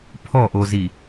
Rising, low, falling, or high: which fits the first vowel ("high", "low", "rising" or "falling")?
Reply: falling